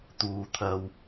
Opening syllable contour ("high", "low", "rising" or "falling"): low